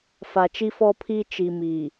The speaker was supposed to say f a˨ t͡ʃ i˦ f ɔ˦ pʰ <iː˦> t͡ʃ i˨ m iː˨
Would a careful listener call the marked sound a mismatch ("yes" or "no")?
no